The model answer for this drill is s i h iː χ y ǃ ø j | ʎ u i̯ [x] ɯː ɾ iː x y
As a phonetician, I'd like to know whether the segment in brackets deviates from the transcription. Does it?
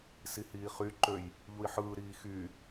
yes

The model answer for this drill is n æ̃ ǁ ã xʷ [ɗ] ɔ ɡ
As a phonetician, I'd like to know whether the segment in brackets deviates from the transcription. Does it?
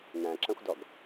yes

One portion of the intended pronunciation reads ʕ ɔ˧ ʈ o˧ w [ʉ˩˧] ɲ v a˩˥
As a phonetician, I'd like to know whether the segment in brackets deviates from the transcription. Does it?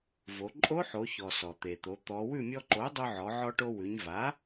no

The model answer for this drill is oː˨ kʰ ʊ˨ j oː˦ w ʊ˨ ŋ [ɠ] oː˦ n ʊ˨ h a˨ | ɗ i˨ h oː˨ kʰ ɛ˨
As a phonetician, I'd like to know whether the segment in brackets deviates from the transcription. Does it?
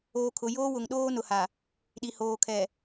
yes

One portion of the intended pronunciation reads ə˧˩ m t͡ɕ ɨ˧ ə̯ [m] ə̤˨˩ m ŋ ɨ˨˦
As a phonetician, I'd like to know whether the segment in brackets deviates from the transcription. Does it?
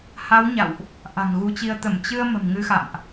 no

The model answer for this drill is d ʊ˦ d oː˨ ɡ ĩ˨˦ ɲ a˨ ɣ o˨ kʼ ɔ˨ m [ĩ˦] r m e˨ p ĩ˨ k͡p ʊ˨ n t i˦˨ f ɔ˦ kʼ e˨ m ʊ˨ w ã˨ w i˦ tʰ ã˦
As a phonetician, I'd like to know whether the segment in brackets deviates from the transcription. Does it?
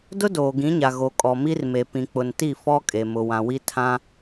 yes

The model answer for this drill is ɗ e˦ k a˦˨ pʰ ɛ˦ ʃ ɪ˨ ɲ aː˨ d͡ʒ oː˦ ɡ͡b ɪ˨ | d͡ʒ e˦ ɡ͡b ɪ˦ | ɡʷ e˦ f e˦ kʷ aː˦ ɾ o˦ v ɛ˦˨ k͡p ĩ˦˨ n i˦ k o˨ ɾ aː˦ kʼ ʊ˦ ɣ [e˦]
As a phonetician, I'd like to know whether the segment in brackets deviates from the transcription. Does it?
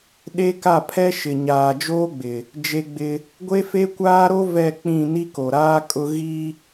yes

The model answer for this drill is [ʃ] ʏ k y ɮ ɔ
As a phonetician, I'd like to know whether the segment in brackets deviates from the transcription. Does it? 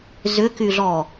yes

